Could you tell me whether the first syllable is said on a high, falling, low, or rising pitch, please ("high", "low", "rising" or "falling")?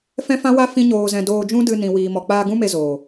high